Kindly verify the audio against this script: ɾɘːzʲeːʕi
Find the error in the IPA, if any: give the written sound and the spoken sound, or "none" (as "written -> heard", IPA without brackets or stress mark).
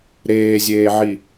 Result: ɘː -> eː